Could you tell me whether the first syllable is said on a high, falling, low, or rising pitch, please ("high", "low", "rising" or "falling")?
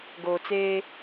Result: low